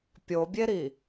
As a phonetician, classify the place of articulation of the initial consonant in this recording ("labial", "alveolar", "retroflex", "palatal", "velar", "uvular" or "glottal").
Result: labial